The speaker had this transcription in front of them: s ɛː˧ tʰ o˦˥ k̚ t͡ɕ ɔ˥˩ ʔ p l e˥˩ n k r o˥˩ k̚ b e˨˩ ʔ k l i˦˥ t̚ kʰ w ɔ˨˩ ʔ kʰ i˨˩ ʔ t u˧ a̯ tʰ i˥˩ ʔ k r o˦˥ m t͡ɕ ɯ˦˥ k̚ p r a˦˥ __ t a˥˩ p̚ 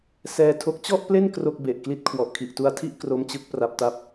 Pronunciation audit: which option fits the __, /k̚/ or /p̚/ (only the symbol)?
p̚